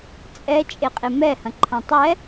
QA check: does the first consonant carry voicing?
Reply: no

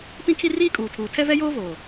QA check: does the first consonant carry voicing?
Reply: no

